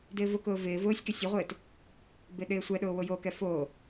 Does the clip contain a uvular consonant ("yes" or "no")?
yes